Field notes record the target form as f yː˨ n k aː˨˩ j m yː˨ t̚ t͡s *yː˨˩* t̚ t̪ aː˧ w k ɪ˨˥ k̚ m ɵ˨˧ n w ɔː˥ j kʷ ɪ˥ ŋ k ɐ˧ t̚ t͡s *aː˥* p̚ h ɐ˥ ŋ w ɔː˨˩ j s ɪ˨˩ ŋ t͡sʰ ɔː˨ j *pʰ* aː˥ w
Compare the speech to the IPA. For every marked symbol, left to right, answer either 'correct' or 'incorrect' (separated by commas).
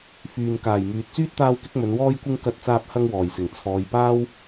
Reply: incorrect, correct, incorrect